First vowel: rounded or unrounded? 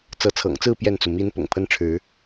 unrounded